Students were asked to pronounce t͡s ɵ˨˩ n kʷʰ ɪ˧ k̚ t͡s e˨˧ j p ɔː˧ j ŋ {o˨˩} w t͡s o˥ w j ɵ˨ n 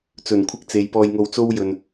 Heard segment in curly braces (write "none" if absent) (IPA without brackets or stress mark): o˧